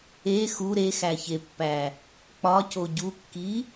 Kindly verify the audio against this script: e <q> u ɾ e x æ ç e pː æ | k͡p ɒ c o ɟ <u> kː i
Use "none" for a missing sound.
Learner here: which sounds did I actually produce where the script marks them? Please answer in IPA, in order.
x, u

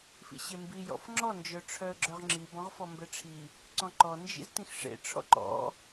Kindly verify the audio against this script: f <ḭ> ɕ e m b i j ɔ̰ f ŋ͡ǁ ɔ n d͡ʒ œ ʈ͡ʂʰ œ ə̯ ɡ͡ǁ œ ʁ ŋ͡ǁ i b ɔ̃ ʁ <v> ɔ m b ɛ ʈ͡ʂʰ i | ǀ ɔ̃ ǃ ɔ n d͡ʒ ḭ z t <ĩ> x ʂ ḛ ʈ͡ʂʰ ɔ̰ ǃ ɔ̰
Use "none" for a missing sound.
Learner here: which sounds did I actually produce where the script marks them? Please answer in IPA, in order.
ḭ, f, ĩ

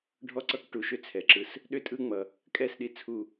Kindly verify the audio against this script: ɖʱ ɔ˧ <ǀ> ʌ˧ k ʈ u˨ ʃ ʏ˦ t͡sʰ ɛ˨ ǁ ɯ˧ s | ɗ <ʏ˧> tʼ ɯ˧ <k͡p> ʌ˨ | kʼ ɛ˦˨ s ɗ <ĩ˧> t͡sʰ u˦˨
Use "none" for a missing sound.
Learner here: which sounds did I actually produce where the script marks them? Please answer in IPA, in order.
ǀ, ʏ˧, ŋ͡m, i˧

